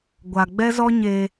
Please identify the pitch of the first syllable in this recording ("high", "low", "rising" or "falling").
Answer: low